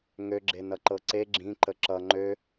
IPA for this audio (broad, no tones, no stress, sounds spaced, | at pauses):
ŋ ø ɡ͡ǁ e n ʌ ǃ ɤ ǀ e ɡ͡ǁ ĩ ǃ ə ǁ ʌ ŋ͡ǃ ø